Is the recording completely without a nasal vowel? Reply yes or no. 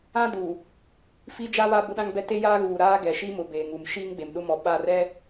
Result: no